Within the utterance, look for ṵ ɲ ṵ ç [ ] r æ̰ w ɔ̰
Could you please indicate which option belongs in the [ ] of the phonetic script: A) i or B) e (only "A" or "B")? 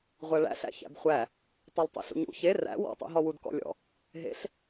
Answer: B